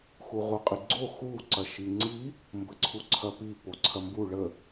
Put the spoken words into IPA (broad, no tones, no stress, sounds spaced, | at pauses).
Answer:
x u ʁ u qʼ i ɡ͡ǀ o x u ǀ ɐ ʃ i ŋ͡ǀ i | m b ə ǀʰ u ǀʰ ɐ p i p o ǀʰ ɐ m b u ɭ ə